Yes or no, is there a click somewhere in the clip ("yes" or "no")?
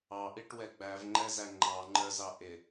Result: yes